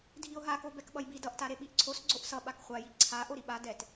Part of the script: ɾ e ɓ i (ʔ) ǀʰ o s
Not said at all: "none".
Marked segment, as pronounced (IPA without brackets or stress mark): ʔ